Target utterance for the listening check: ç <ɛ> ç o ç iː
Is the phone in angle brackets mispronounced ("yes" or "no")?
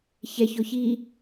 no